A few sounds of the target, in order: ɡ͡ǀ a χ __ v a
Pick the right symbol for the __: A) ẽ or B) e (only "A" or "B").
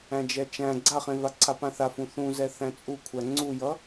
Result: A